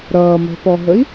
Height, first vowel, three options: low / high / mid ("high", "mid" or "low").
mid